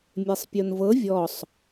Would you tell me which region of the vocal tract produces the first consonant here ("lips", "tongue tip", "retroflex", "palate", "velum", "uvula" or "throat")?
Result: lips